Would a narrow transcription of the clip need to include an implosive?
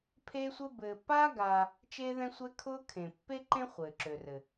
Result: no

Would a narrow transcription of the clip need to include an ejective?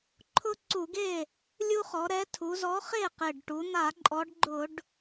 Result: yes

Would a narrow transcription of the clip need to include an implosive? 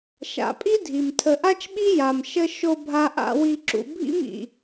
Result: yes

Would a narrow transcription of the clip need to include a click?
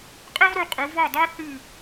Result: no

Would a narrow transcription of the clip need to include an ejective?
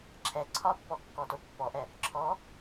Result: no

